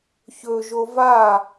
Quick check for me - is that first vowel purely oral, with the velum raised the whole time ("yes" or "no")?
yes